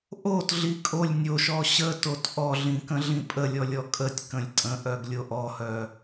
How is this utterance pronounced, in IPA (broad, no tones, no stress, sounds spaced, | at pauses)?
ʔ o t ɮ i kʼ o lʲ nʲ o ʃ ɔ ɕ ə t o t ʔ ɔ ɮ ĩ k ə̃ ɮ ĩ pʼ ə lʲ ɔ lʲ ɔ kʼ ə tʲ k ə̃ lʲ tʼ ə̃ ʔ œ ɡ lʲ o ʔ ɔ h œ